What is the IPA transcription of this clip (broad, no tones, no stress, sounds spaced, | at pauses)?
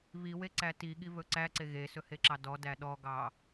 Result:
β i w e ǀ æ t i ɠ i β ɵ ǀ æ ǀ e ɣ e s ɵ h e ǁ ɑ d ɔ d æ ɗ ɔ ɡ ɑ